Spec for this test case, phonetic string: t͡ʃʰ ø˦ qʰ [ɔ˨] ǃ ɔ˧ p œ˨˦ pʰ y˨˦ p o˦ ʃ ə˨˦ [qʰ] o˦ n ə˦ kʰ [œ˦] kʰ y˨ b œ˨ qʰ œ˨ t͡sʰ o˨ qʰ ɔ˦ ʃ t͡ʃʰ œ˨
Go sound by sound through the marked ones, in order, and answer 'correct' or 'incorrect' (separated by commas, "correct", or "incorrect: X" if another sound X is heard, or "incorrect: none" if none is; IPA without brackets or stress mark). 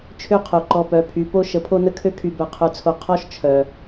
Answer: incorrect: o˨, incorrect: pʰ, incorrect: ø˦